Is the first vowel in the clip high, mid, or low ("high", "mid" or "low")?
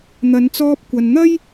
low